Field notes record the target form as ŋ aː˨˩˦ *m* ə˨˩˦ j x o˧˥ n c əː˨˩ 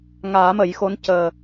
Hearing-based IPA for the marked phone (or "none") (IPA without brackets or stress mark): m